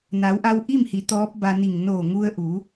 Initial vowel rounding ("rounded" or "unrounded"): unrounded